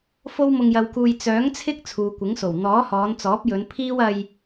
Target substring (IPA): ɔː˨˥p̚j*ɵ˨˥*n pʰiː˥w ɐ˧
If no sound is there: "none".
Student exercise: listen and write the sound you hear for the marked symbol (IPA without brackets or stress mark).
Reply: ɵ˨˧